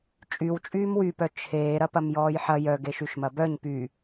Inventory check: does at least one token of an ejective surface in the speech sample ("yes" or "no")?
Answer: yes